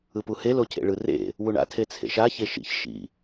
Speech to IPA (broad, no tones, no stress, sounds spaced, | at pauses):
ɯ p u h e l o cʰ ḛ ɭ ɯ r ḛ | w u ɳ a̰ tʰ e t͡sʰ ḛ ʃ a ç e ʃ ḭ ç ʃ ḭ